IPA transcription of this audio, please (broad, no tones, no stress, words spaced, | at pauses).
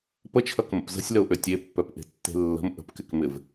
pət͡ʃʰɐkmə̰p zə̤sʲləʊ̯ʔø tʲepːœpʔe̤tːe̤ lːə̤m ʔə̤pkɪkmɪv